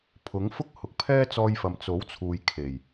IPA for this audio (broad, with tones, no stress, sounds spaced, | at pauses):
pʰ ʊ˨˥ ŋ f ʊ˥ k̚ h ʊ˨ k̚ pʰ ɛː˥ t͡s ɔː˧ j f ɐ˨ m t͡s o˨˥ w t͡sʰ uː˨ j kʰ e˨˩ j